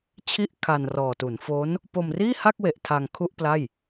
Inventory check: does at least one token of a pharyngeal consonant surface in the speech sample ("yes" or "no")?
no